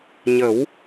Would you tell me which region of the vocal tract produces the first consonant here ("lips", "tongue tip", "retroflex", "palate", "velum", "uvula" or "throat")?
palate